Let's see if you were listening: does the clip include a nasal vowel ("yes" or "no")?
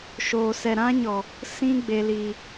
yes